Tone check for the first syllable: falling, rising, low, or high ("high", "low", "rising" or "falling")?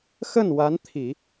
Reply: falling